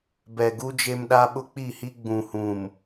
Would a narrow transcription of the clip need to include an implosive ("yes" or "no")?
yes